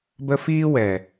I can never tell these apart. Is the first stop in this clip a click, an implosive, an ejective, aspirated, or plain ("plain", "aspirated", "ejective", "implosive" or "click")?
plain